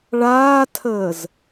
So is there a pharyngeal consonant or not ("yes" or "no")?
no